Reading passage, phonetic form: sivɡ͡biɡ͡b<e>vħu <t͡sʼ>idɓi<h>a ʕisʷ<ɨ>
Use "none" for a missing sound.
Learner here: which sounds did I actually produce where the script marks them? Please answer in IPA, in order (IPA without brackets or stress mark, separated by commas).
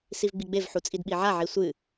e, t͡sʼ, ʕ, ɨ